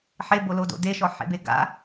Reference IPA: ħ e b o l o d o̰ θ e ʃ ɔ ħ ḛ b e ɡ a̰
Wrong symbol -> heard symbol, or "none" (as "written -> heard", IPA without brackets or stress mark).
θ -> d